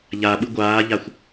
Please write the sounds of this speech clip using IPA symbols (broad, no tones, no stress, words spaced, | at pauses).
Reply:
ʎaɓɯ ɡʷaːʎaxʷ